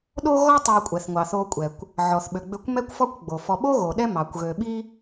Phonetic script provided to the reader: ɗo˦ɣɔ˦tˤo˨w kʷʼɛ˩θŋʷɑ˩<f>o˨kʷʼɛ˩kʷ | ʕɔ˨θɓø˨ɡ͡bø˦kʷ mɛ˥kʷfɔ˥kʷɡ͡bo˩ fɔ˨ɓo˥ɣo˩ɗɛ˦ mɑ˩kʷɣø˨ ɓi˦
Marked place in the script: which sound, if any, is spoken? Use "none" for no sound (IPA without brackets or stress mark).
θ